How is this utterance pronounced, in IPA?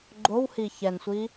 ɡ͡ǃowhi çɛnsʷi

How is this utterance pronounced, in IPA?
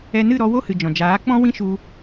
ɛ˧nɨ˦˨ɾɔ˧ wo˦hɨ˨ d͡ʒɔ̃˨d͡ʒaː˨˦k͡pɔ̃˦wĩ˦ ʃu˧

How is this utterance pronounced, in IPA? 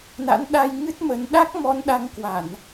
na̰˧˥nɗa˧jŋɨ˦˥t̚ mə˨˦n ɗa˦˥k̚mɔ˨˦n ɗa˧ŋkwa˧˩˨n

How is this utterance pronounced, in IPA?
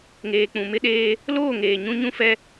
ŋeː˨k͡pũ˨mɪ˦ɗeː˦ | loː˦˨ŋeː˨ ɲũ˦ɲũ˦ fɛ˦

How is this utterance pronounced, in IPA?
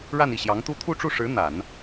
ɻa˥˧ni˥˩ɕjɑ˧˥ŋt̪u˥ t̪ʰu˥˧ʈ͡ʂu˥˩ʂɻ̩˧˥ n̪a˨˩˦n

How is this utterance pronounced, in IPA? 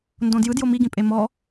ndõdjɯ djomiɡĩpʼe mɔ

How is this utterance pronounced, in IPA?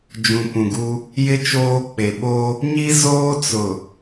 d͡ʒũ˨pũ˨ɡu˦ | jɪ˦ t͡ʃoː˦k͡pe˨ ɓo˦ | ɲi˦ zoː˦t͡sʊ˨

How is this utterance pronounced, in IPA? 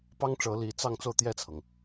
pɑ˥ŋʈ͡ʂɤ˧˥ li˧˥t͡sɑ˥˧ŋ t͡so˥˧ʊ̯t̪jɛ˥˩t͡sʰɤ˩ŋ

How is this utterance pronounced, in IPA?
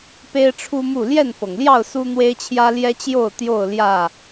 pe˦ɪ̯ʈ͡ʂʰu˦mu˥˨ ljɛ˥˨nfɤ˩ŋljɑ˥˨ʊ̯ su˦n̪we˦ɪ̯t͡ɕʰjä˦ ljɛ˦t͡ɕjo˥˨ʊ̯ t̪jo˥˨ʊ̯ljä˥˨

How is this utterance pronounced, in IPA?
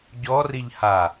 ɟɔ riʎha

